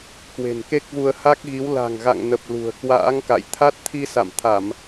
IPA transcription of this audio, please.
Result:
k w e̤˨˩ n k e˦˥ k̚ v u˧ ə̯ h a˦˥ k̚ ɣ i˨˦ w l a̤˨˩ ŋ ɣ a̰˧˨ ŋ n ə˨˩ p̚ l ṳ˨˩ ə̯ k w a̰ː˧˥ ŋ k a̰˧˨ j t̪ʰ a˦˥ t̚ t̪ʰ i˧ s a̰˧˨ m t̪ʰ a˧˩˨ m

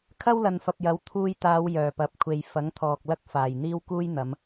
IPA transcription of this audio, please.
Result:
kʰ ɐ˥ w l ɐ˨ n f ɐ˨ p̚ j ɐ˨˥ w t̪ʰ uː˧ j t̪ aː˨˧ w j œː˨˩ p ɐ˨ p̚ kʷʰ e˨ j f ɐ˨˥ ŋ t̪ʰ ɔː˨ k̚ l ɐ˥ k̚ f aː˨˩ j n̪ iː˥ w k uː˥ j n̪ ɐ˨˧ m

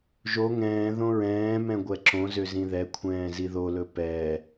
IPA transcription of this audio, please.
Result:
ʒ o ŋ ɛ̃ː ð õ ɹ ɛ̃ː m ɛ̃ ɡʷ ɛ ǁ õ z ø z ĩ ð ɛ kʷʰ ɛ̃ː z i ð o l ɵ p ɛ

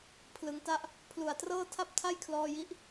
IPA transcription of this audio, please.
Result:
pʰ l ɯ˩˦ ŋ t a˥˩ ʔ | pʰ l u˨˩ a̯ t r ɤː˥˩ tʰ a˥˩ p̚ tʰ a˥˩ j kʰ l ɔː˧ j i˦˥ ʔ

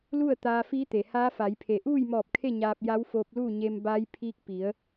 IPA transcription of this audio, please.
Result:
l u˥˨ ə̯ t̪ aː˧ f iː˧˥ t̪ e˩ h aː˧˥ f a˩˧ j pʰ e˩ ʔ uː˥˨ j m ɔː˧˩ p̚ kʰ e˥˨ ɲ aː˧ p̚ j a˧˥ w f oː˧ p̚ l uː˥˨ ɲ e˧ m b a˧˥ j pʰ i˧ k̚ p i˩˧ ə̯

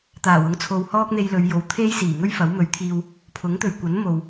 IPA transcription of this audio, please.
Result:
t̪ aː˨˩ w ʊ˨˥ ŋ t͡sʰ o˨ w h ɔː˥ k̚ n̪ e˧ j l ɵ˨˧ ɥ j o˨˥ w t̪ʰ e˥ j s iː˨˩ ŋ ɵ˥ ɥ f ɐ˨˥ w m ɵ˨˧ ɥ t̪ʰ iː˧ w | pʰ ʊ˨˥ ŋ t̪ ɵ˨ ɥ kʷ ɐ˨˥ n m o˨ w

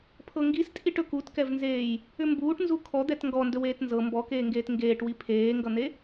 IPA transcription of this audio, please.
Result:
pʰ ɤ ŋ ɡ i s tʼ i ʈ ɵ k u t k ɛ v n z eː j | ʏ m b uː ʈ n z u kʰ ɔ d̪ ɛ t ŋ ɡ ɔ n d ɵ w eː t n z ɤ m b ɔ k eː ŋ ɡ eː t ŋ ɡ eː ʈ w i pʰ eː ŋ ɡ ʌ n̪ e

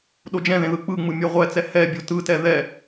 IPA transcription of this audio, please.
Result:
ɗ o d͡ʒ ɛ̃ ð ẽ ð ɯ k͡p ɯ ŋ͡m ɯ mʲ ɛ ʁʷ ɛ t͡s ɛ h ɛ bʲ o t ɯ t ɛ ð ɛ

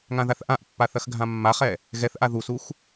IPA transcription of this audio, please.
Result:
ŋ ã ð a θ ʔ ã ʔ pː a θ ɐ x ɡʱ ã mː a χ ɛ | ɣ ɛ θ ʔ a ð u s u x

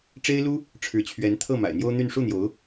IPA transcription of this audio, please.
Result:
ʈ͡ʂ e˥ ɪ̯ l u˥ | ʈ͡ʂʰ ɻ̩˧˥ t͡ɕʰ ɥ ɛ˧˥ n t̪ʰ ɤ˥˩ m a̰˨˩ ɪ̯ n̪ j o˥ ʊ̯ n̪ y˥˧ n ʂ u˥˩ n̪ j o˧˥ ʊ̯

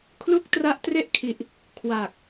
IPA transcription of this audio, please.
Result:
kʰ l u˥˩ k̚ t r a˦˥ ʔ t r e˥˩ ʔ kʰ i˨˩ ʔ | kʰ w aː˨˩ k̚

